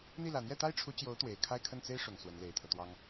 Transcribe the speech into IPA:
n̪ i˥˩ l ä˨˩ n̪ j ɛ˥˩ t̪ a˥ ɪ̯ ʈ͡ʂʰ u˧˥ t͡ɕ j o˧˥ ʊ̯ t̪ w e˨˩ ɪ̯ kʰ a˥˧ ɪ̯ kʰ ə˥˩ n t͡s e˥ ɪ̯ ʂ ʊ˨˩ ŋ s w ə˧˥ n l e˨˩ ɪ̯ t̪ʰ ɤ˦ t̪ w ɑ˥ ŋ

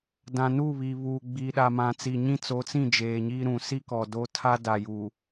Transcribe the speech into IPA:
d ã˨ n u˦˨ β i˨ β uː˨ ɡ͡b i˨ ɗ a˨ m ã˨ t͡s i˨ ɲ ĩ˦ t͡s o˨˦ t͡s ĩ˦˨ d͡ʒ eː˨ ɲ iː˦ ɾ ũ˨ s i˦ k ɔ˨ d o˦ tʰ a˦ d a˨ j uː˨

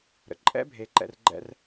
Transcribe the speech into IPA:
ɾ ə̰˨ ǃʼ ɛ̰˧ bʱ e˨˦ ǃ ɛ̰˧ r ɡ͡ǃ ɛ̰˦ r

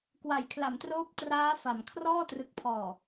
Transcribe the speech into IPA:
k w a˩˦ j kʰ l a˩˦ m t r oː˦˥ p̚ t r aː˦˥ f a˩˦ m kʰ r ɔː˥˩ t r ɯ˨˩ k̚ pʰ ɔː˨˩

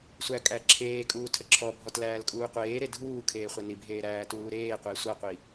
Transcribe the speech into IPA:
sʷ æ kʼ æ ǁʰ eː kʼ uː tʰ ə ǁʰ ɔ bʱ ɔ t l æː l kʼ uː qʷ eː ɾ e dʱ uː kʰ eː χʷ æ n i bʱ eː ɾ æː t uː ɾ eː qʷ e sʷ a qʷ i

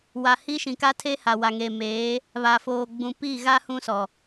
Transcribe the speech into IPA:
w a˨ h i˦ ʃ ĩ˨ k a˦ tʰ eː˦ h a˨ w a˨ ŋ eː˨ m eː˨˦ | β a˨ f oː˨ ɡ͡b ũ˨ p i˦˨ ɣ a˦ h ũ˦ s ɔ˨

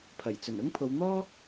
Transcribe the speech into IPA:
pʰ ɐ˨˩ j t͡s ɵ˨˩ n ʊ˥ ŋ pʰ o˨˧ w n̪ ɔː˥

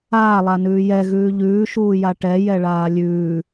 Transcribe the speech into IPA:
aː lˠ a n ʉː j ɛ ɣ ʉː ʎ ʉː ʃ uː j a ʈ ɛ j ɛ ɭ aː lʲ ʉː

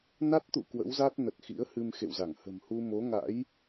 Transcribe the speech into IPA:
n a˦˥ t̚ t̪ ṵ˧˨ k w ə̰˧˥ w z a˦˥ t̚ n ə˨˩ t̚ x ḭ˧˥ ə̯ h ɨ˧ m x ḛ˧˨ w z a˧˩ ŋ h ə̤˨˩ m h u˧ m o˨˦ ŋ a̰˧˥ j

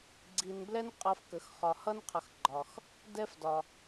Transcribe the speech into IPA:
ɡ͡ǀ i˨ n b l ɛ˦ n qʼ ʌ˨ f k ə˩ x χ ɒ˨ h ʌ˥ n qʰ ʌ˨ x ɡ͡ǃ ɒ˩ x | d ɛ˥ f d ɒ˨

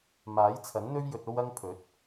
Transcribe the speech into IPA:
m aː˨˥ j t͡sʰ ɐ˨˥ n n̪ ɵ˥ ɥ j ɵ˧ t̚ o˥ w ɐ˥ ŋ pʰ ɵ˨˥ t̚

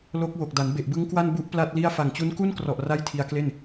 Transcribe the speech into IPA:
l o˦˥ k̚ w o˨˩ k̚ d a˩˦ n b e˨˩ ʔ b ɯ˦˥ ŋ k w a˥˩ n b u˦˥ ʔ p l a˥˩ t̚ l i˥˩ a̯ f a˨˩ ŋ t͡ɕ u˦˥ n k u˥˩ n k r ɔ˨˩ ʔ r a˥˩ j tʰ i˧ a̯ k l e˥˩ n

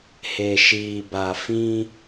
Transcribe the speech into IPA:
h e˨ ʃ iː˨ b a˨ f ĩ˦

